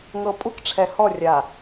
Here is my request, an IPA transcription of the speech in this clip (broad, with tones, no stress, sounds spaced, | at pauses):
ŋ ɤ˨ pʼ u˦ k ʈ͡ʂʰ ɛ˨ h ɔ˦˨ rʲ a˨